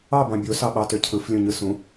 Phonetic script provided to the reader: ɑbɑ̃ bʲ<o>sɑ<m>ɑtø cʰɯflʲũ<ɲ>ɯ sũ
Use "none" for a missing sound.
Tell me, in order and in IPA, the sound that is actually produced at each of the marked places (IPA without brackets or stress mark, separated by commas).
o, ɓ, ɲ